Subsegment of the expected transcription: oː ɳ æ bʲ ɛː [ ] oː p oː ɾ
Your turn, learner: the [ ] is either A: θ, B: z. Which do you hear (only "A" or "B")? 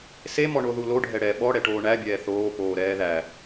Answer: A